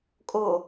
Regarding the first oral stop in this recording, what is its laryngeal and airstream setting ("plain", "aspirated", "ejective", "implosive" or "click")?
ejective